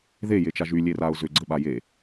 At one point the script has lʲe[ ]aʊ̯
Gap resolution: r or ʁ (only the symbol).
r